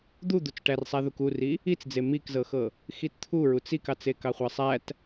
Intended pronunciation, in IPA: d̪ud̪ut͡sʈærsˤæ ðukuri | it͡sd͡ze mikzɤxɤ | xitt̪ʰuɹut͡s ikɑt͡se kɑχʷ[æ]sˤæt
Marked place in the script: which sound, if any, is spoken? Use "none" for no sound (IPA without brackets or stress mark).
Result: æ